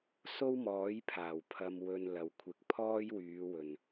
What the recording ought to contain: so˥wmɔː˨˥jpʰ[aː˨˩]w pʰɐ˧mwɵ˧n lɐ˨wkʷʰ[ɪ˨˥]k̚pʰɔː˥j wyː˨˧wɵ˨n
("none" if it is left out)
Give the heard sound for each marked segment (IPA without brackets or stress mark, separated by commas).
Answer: aː˨˩, ɪ˨˥